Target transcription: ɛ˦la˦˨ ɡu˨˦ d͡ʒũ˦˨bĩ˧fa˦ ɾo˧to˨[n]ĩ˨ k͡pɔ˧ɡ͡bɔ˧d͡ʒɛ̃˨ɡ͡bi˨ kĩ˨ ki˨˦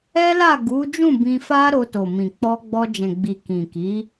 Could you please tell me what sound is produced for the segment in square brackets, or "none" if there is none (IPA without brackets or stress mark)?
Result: m